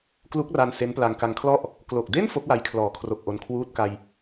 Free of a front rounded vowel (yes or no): yes